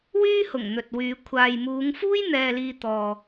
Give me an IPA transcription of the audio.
w yː˥ h ʊ˨˩ ŋ n̪ ɵ˨ t̚ w yː˨˧ kʷʰ aː˨ j m uː˨˧ ŋ f uː˥ j n̪ ɛː˨ l iː˨ t̪ ɔː˨

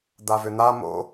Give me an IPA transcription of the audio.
d̪ a v ʏ n̪ a m o̰

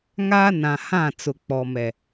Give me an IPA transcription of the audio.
ŋ aː˦ n ã˨ h ã˦˨ t͡s ʊ˨ k͡p ɔ˨ m ɛ˨

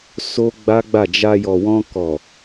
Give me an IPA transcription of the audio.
s o˦ ɡ͡b a˦ ɡ͡b a˦˨ d͡ʒ a˧ j ɔ˨ w ɔ̃˧ k ɔ˨

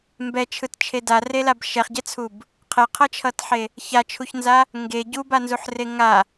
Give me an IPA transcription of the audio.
m b ɛ t͡ʃʰ ɯ t t͡ʃʰ e d a r e l a b ʃ ɛ χ ɟ ɛ t͡sʰ u b | qʰ ɛ qʰ ʌ t͡ʃʰ ʌ t ħ e | ç a t͡ʃʰ u ç n z a | ŋ ɡ e ɟ u b a n z u ħ r e ŋ a

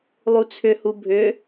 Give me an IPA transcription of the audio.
lˠ u t͡sʰ ʏ h u bʱ ʏ

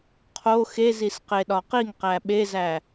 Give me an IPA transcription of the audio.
qʰ o x e z i s q e ɗ ɒ q i ŋ q æ ɓ e z æ

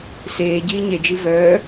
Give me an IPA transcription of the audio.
s eː ɟ iː ɲ e d͡ʒ i v œː

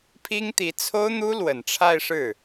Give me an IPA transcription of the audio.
pʰ i˥ ŋ t̪ i˧˥ t͡sʰ o˥ ʊ̯ n̪ u˥ l w ə˨˩ n ʈ͡ʂʰ a˥˧ ɪ̯ ʂ ɻ̩˥˩

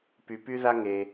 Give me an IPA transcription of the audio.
p y˩ p y˧ ð a˧ ŋ e˩

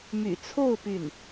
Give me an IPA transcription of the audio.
m y̰˨˩ t͡sʰ o˥˧ ʊ̯ p y˥˩ n

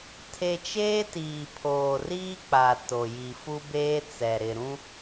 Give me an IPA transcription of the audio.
tʰ e˨ t͡ʃ eː˦ t iː˨ pʰ oː˨ r iː˦ k͡p a˨ t o˨ j i˨ f u˦ b eː˦ t͡s ɛ˨ ɾ ɪ˨ ɾ ũ˦

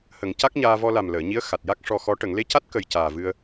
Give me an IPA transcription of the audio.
h ə˨˩˨ ŋ c a˦˥ k̚ ɲ aː˧ v ɔ˧ l a˨˩ m l əː˨˩˨ ɲ i˧˥ ə̯ x a˨˩ t̚ j a˦˥ k̚ ʂ ɔ˧ x ɔ˧˥ ʈ ə˨˩˨ ŋ l e˧˥ c a˦˥ t̚ k ə˨˩ j c aː˨˩ v ɨ˧ ə̯

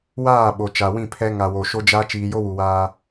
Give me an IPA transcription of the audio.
w aː˦˨ ɓ o˨ t͡ʃ a˨ w ĩ˦˨ pʰ ɛ˦ ŋ a˨ w o˨ ʃ o˦ d͡ʒ a˦ t͡ʃ iː˨ j o˦ w u˨ w aː˦

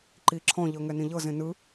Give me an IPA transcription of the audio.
ǃ i ǁʰ ɔ̃ ʎ ɤ ŋ ɛ n ĩ ʎ ɤ z ẽ n ɯ

